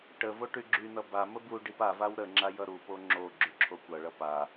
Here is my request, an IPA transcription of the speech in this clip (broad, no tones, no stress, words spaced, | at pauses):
ʈəvo ʈyɡ͡ǁynʌ bamə buɖip a vawɾəŋ͡ǁa jʌɾupo ŋ͡ǁo ɡ͡ǁyǁʰokʷʌɭʌ pa